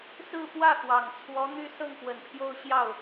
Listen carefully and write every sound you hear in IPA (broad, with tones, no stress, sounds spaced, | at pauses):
s ɹ̩˥˧ p w ä˥˩ x w ɑ˨˩ ŋ t͡sʰ w ɔ˧˥ n̪ y˥˧ s ɤ˥˩ ŋ p w ə˨˩ n pʰ j o˥˧ ʊ̯ ɕ j ɑ˥˩ ʊ̯